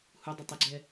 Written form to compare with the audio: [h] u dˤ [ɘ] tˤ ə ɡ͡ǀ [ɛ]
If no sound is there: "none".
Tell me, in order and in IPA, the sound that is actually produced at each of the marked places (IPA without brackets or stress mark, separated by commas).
h, ɘ, ɛ